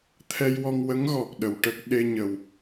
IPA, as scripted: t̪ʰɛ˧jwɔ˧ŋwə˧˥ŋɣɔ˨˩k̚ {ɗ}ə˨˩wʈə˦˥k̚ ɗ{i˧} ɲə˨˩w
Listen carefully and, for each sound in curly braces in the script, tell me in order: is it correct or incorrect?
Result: correct, incorrect

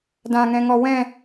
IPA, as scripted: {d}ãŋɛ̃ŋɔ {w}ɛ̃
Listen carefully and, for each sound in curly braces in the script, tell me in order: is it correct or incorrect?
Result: correct, correct

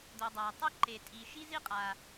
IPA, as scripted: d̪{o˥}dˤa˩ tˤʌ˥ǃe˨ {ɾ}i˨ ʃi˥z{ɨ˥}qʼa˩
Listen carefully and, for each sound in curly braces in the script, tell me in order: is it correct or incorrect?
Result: incorrect, incorrect, incorrect

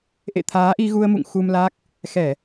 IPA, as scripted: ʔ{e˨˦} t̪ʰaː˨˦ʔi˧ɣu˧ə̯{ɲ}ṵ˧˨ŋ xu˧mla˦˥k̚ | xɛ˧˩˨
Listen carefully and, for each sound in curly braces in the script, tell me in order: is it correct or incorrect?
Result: incorrect, incorrect

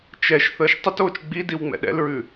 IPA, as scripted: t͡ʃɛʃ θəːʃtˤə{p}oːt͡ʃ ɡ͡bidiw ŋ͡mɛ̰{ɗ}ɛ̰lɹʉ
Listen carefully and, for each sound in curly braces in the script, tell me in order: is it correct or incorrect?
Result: incorrect, correct

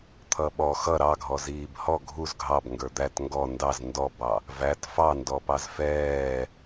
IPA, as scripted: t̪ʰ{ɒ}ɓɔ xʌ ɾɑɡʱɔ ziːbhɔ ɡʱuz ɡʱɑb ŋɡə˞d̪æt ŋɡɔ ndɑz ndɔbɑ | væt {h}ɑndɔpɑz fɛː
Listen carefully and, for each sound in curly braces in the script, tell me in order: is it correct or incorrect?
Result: incorrect, incorrect

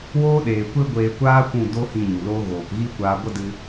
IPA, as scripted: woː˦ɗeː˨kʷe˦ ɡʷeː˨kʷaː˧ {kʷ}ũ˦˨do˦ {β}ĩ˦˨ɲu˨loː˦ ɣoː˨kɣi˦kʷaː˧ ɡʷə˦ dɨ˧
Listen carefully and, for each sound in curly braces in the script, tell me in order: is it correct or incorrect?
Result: correct, incorrect

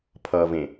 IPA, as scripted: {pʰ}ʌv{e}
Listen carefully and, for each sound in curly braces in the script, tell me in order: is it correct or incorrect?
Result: correct, incorrect

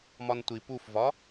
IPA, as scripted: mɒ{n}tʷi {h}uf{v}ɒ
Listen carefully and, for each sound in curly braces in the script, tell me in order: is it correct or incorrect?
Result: correct, incorrect, correct

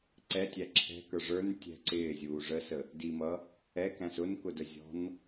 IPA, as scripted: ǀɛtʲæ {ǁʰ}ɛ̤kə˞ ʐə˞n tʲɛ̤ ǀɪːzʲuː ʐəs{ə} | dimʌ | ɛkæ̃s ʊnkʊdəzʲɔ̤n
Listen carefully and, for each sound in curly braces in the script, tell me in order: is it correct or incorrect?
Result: correct, correct

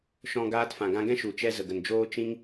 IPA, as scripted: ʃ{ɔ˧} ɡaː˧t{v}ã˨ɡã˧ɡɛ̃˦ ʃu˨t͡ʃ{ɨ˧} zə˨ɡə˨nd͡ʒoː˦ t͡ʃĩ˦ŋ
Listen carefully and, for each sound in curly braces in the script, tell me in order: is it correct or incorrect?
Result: incorrect, incorrect, incorrect

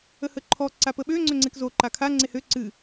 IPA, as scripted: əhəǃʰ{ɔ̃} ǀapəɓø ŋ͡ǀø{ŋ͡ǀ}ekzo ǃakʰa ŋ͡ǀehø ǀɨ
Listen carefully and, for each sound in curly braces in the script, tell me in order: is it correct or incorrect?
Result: incorrect, correct

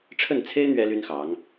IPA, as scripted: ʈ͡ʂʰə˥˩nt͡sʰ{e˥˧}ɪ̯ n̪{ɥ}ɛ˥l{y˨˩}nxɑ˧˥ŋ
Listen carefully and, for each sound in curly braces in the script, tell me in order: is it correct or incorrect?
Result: incorrect, correct, incorrect

